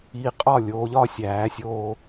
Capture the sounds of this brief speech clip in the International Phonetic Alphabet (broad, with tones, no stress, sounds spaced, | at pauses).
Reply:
iː˨ qʼ ɒː˦˨ lʲ oː˨˦ ʎ ɒː˦ sʲ æː˨˦ sʲ oː˦